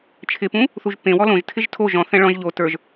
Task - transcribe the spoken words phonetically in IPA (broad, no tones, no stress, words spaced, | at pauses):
t͡ʃʰɪpũ | θuʒpẽwɔ lõʒtʰɪʒ tʰo ʒɔ̃θɛ̃ ɭɔ̃ʒ ʎo tə˞ʒ